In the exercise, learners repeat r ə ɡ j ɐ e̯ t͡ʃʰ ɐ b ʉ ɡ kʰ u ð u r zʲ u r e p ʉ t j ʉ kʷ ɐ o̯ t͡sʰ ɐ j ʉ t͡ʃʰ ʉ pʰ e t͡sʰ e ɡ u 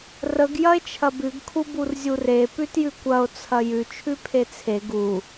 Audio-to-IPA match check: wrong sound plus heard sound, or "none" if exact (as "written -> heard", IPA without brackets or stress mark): ð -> b